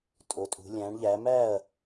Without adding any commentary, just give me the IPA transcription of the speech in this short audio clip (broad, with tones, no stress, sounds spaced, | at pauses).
tʼ o˩˧ tʼ ṳ˩˧ lʲ æ̃˩˥ ɳ ʎ æ˩˥ m æ˥˩ ɐ̯